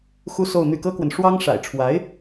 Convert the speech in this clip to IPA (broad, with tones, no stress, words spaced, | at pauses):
xu˥so˥˧ʊ̯n̪y˥˩ kɤ˥kwə˨n ʂwɑ˥ŋ ʂa̰˨˩ɪ̯ʈ͡ʂʰwa˧˥ɪ̯